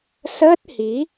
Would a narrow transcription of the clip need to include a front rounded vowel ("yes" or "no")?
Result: no